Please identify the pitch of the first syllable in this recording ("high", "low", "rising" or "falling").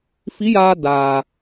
rising